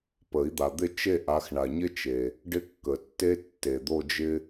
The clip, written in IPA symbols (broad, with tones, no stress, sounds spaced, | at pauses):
p ə˨˩˦ i̯ d̪ a˨ d̪ ɪ˥˧ t͡ʃ e˥˧ ʔ a˨˦ x ɳ a˨ ɲ ɪ˥ t͡ʃ e˨ | ɖ ɪ˥˧ kː ə˨ tː e˥ tː e˨ d̪ o˥˧ d͡ʒ ɪ˥